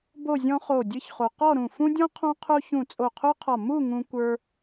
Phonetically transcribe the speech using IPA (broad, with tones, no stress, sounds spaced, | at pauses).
b o˥˧ zʲ ɔ̃˥ χ o˧˩ dʲ ɨ˥ ç χ o˧ q ɔ˥˧ ɾ ũ˧˩ f ũ˥ dʲ ɔ̃˥ qʰ ɔ̃˥ qʰ o˥ ç ũ˧˩ t͡sʼ o˧˩ qʰ o˥ qʰ ɒ˧˩ m u˥˧ ŋ ũ˧ kʷ ə˞˧